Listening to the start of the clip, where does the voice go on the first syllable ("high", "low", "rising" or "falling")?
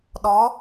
rising